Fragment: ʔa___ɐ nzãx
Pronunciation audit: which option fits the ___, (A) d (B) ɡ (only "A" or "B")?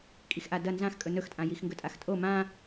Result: A